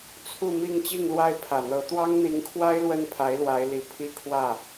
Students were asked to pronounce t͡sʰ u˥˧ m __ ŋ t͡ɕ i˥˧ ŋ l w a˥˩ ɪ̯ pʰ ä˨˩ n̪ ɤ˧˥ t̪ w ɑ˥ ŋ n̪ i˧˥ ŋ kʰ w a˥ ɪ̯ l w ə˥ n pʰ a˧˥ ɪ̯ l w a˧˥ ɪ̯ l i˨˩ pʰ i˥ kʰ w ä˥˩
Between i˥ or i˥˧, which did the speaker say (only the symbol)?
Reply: i˥˧